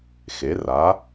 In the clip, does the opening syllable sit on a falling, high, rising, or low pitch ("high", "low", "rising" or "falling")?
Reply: rising